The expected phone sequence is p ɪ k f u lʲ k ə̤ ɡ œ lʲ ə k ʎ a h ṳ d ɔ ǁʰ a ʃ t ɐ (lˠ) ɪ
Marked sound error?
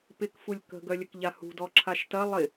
no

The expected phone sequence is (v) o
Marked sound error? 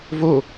no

